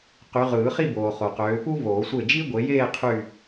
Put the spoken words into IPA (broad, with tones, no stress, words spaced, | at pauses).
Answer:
qy˨˦ ʁɯː˨˩˦χi˥˧ boː˨χo˨qøː˨˦ pu˥voː˨˩˦sʷe˥˩ d͡ʒi˥ ɡʷe˨˦jeː˥˧ qʰy˥˧